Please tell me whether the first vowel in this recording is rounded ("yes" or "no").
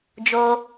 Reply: yes